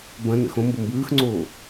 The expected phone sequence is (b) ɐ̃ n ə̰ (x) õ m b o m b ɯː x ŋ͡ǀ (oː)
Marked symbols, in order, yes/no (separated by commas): yes, yes, yes